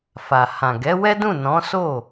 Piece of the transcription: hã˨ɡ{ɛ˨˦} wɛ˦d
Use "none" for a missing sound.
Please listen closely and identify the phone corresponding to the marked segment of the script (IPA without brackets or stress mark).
ɛ˨˦